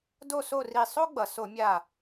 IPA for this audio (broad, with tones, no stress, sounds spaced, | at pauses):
d o˥˨ s o˥˨ r i˧˩ sˤ o˥ ɡ͡b ʌ˩ s o˧˩˧ mʲ a˧˩